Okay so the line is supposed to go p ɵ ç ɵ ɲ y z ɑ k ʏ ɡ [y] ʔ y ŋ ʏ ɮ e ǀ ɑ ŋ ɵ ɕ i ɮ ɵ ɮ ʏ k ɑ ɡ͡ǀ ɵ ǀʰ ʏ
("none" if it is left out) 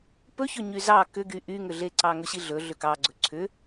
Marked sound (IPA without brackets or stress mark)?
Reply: y